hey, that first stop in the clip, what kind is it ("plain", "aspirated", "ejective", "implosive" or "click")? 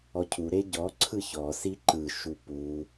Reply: aspirated